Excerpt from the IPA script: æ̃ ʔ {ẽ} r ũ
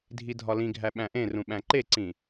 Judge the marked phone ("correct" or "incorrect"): correct